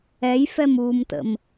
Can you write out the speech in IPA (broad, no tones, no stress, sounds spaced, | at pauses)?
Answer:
ɛ j f ɛ m uː m t ə̰ m